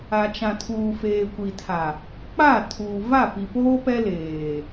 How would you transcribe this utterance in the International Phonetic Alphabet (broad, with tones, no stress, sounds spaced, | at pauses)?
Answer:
a˨ t͡ʃ ã˨ tʰ uː˨ f eː˨ kʷ i˨ tʰ a˨ | k͡p a˦˨ tʰ uː˨ v a˦˨ p i˨ p oː˦ p ɛ˦ l eː˨